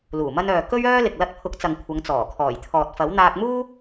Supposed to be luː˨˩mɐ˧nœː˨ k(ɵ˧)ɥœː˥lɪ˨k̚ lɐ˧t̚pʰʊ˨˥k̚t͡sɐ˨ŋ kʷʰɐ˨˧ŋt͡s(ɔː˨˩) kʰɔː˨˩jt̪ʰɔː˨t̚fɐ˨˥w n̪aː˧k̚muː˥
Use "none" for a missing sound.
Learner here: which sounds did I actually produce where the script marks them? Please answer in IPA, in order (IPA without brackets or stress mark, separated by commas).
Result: ɵ˥, ɔː˨˩